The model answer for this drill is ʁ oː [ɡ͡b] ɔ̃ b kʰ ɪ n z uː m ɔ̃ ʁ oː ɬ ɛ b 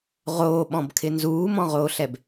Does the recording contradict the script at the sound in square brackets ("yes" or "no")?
yes